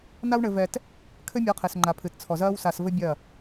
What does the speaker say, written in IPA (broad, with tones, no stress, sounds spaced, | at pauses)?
n a˦ w ɳ ɘ˧ v ɛ˧ t | kʰ ɘ˦ mʲ ɔ˨˦ qʰ e˨ s ŋ͡ǃ a˨ pʰ ɨ˨ t t͡sʰ ɔ˨ z ɐː˦ w s a˧ s v ɘ˦ bʲ ɐ˦˨